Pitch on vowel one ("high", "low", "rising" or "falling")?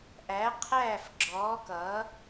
rising